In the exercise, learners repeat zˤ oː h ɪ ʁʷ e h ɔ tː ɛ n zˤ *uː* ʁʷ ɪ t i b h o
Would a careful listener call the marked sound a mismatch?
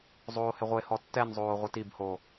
yes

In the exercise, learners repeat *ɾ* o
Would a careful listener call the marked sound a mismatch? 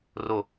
yes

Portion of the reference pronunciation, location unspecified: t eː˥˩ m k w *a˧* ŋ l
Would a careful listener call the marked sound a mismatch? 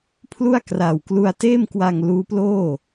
no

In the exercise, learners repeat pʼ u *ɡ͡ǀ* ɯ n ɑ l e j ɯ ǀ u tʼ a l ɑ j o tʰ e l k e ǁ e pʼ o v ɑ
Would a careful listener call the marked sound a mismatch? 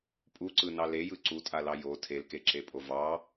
yes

